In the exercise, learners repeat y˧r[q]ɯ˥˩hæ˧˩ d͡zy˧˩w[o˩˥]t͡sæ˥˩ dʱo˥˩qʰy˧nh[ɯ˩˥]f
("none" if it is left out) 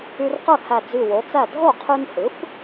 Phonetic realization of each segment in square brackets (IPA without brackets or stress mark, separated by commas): q, o˩˥, ɯ˩˥